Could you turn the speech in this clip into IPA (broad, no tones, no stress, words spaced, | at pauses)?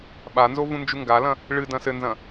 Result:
ɓanzo vũnd͡ʒuŋɡalɐ̃ | ɭɨ dɐ̃sɘnzɐ̃